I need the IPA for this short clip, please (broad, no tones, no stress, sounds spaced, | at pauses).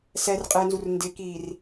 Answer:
s ɛ r qʼ ɪː n z u r n d ɪ k iː r